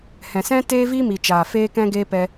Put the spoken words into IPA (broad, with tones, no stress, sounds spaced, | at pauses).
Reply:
h ɛ̃˨ s ɛ̃˦ t eː˦ v iː˦ m i˨ t͡ʃ aː˨ f eː˧ k ɛ̃˧ ɡ eː˧ p ɛ˧